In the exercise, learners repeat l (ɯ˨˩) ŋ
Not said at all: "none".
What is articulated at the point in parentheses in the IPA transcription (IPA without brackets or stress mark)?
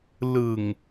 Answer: ɯ˨˩